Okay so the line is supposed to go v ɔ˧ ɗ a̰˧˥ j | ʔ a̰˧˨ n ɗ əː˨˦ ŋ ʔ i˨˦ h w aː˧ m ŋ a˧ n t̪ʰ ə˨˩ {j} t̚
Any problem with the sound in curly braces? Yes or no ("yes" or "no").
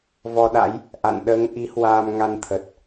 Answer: yes